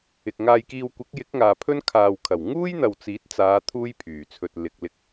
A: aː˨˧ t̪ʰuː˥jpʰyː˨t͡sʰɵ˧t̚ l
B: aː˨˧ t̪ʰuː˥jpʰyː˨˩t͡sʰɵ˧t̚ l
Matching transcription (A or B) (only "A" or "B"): A